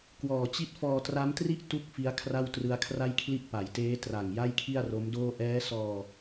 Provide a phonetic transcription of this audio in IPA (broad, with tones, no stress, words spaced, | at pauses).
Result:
kwɔː˨˩t͡ɕi˥˩t̚ fɔː˧tra˦˥mtri˥˩ʔ tu˥˩k̚fi˦˥a̯ kʰra˥˩wtrɯ˦˥a̯kʰra˥˩jkʰli˥˩ʔ pa˩˦jteː˦˥ tra˨˩ŋ ja˥˩jkʰi˥˩a̯ro˦˥mdoː˥˩ ʔɛː˦˥sɔː˧